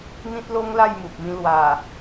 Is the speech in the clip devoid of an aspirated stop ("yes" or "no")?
yes